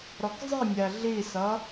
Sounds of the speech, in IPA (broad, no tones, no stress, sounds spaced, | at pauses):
ɾ ɔ k zˤ i mʲ æ ɮ i s ʌ